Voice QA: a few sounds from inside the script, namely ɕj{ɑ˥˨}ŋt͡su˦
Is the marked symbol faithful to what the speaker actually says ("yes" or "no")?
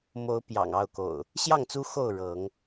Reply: yes